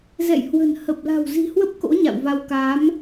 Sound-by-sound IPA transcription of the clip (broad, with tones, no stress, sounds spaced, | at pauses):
z ɛ̰˧˨ j h w ə̤˨˩ n h ə˨˩ p̚ l a̤˨˩ w z i̤˨˩ h w ə˦˥ p̚ k o̰˧˥ ɲ a̰˧˨ w v a˧ w k a˨˦ m